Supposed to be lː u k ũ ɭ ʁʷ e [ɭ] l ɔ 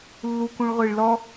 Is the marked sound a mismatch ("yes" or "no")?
no